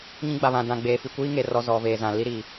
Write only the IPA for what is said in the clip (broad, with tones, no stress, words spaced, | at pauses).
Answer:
ɲĩ˦ɡ͡ba˨βã˨ dã˨ ɡ͡beː˨fi˨kʷiː˦ŋe˨ rɔ˦ zɔ˨veː˨zã˨ li˦ɾi˨